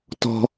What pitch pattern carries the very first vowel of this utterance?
high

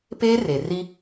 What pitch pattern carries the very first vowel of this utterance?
high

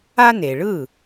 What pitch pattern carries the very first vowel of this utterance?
high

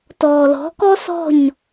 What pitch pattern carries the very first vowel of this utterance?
low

